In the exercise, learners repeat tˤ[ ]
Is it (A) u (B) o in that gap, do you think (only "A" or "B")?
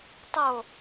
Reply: B